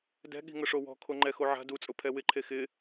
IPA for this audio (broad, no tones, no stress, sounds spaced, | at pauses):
d ɛ̤ ɠ i̤ ŋ ʊ ʂ o w ɔ̤ kʰ o ŋ͡ǃ ɛ x o ʕ a̤ d u t͡sʼ ʊ pʰ ɛ w ɪ ǃʰ e x ɪ